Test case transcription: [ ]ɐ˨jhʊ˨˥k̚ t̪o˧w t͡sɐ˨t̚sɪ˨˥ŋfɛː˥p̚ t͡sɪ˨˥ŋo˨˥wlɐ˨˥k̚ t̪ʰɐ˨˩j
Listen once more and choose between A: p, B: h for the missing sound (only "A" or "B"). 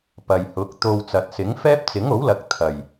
A